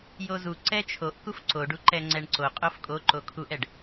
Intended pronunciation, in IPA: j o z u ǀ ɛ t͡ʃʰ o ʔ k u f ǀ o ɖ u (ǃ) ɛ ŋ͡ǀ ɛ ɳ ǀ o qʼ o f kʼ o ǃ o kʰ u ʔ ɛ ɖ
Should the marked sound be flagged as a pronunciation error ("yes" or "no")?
no